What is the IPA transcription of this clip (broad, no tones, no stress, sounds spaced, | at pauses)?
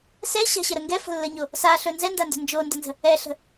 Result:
s ɛ ɕ a̤ ɕ ə ɾ ə ŋ ɡ ɛ f ə̤ lː ə ɲ o | s a ɬ ɵ n z ɛ n d a n d ə̤ n d͡ʒ o n d ə n z ə̤ | ɛ ɬ ə̤